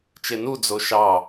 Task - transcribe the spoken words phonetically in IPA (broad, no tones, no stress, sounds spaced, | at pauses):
t͡ʃ e n u d͡z o ʃ ɑ